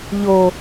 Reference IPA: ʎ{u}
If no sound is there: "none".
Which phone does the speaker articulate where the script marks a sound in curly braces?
o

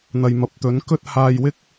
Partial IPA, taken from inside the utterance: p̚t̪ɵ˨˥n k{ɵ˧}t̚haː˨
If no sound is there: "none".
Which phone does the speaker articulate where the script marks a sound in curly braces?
ɵ˧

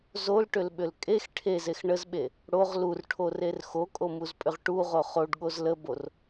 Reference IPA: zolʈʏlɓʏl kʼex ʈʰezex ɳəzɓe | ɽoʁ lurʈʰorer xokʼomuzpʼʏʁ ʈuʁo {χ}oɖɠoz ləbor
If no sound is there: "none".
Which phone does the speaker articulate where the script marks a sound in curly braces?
χ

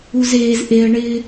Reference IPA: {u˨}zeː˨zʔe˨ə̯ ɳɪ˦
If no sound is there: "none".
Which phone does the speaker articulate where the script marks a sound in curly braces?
u˨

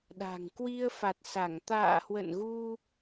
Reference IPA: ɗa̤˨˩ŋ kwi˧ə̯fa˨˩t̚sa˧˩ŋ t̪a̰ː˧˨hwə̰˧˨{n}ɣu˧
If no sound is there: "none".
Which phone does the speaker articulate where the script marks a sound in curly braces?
n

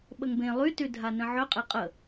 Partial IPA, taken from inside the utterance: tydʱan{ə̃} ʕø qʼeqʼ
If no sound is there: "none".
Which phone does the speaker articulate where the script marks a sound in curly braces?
ə̃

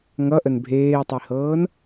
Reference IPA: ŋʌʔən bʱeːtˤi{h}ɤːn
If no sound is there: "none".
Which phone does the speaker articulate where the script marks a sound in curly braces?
h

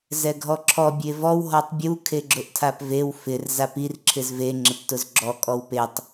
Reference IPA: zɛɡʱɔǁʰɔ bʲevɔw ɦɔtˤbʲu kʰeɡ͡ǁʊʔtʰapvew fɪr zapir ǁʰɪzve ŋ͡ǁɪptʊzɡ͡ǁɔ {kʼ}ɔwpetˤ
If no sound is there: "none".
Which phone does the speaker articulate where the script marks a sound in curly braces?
kʼ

